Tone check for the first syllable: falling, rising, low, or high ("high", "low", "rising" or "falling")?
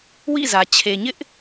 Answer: falling